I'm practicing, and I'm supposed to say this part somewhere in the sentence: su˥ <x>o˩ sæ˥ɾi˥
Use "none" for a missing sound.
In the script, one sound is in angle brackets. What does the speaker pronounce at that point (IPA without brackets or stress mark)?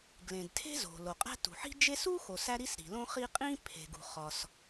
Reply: x